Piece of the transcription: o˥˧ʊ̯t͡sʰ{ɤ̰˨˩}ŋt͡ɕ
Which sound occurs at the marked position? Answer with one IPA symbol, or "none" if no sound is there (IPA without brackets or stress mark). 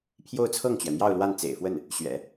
ɤ˥˩